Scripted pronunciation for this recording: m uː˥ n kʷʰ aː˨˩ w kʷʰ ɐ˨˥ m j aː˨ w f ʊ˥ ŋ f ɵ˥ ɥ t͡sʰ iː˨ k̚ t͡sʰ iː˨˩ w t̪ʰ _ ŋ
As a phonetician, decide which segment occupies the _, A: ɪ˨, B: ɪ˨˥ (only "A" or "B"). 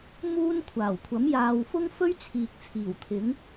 B